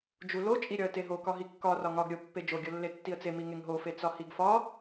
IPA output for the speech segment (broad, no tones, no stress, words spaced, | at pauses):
d͡ʒulo t͡ʃʼiɾʲɒə̯teɦo kɒɦikːɒ rɒŋɒɡ ɾʲo pːed͡ʒo ɡʲolːetːiə̯t͡se miŋeŋɦo fet͡sɒhiɡfɒ